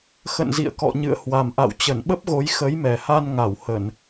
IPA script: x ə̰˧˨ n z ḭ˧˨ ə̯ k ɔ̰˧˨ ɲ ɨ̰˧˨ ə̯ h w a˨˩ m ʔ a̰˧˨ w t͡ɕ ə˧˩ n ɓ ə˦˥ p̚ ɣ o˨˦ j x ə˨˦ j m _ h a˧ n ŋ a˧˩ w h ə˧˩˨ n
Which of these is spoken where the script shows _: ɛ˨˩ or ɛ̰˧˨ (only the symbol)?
ɛ˨˩